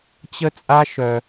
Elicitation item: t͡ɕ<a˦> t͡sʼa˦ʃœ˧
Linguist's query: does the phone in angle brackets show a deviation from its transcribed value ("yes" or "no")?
yes